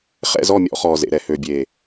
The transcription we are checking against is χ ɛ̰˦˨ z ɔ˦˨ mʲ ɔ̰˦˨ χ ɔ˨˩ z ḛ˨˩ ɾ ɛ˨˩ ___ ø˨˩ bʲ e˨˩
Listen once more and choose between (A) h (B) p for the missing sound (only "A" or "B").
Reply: A